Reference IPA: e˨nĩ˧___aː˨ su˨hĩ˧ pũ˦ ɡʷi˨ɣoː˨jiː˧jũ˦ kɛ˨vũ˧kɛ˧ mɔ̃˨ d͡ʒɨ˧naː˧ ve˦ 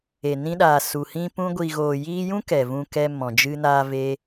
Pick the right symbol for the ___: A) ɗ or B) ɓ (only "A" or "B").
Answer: A